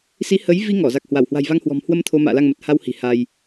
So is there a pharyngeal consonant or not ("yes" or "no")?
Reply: no